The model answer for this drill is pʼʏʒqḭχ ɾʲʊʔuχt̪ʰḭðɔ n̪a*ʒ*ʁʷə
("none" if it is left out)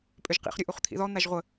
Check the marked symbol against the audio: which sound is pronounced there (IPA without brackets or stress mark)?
ʒ